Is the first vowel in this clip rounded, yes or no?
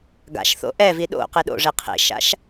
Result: no